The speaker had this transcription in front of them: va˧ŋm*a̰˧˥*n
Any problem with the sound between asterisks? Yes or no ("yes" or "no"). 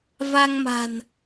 yes